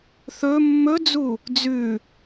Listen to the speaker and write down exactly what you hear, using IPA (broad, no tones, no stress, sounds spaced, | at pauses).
θ ɵ mː ɵ d͡z u | d͡z ʉ